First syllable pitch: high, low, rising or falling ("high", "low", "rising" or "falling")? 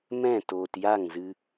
falling